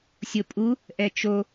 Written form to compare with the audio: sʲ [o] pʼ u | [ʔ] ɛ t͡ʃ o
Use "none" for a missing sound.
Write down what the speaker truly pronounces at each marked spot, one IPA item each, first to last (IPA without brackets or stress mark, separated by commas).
o, ʔ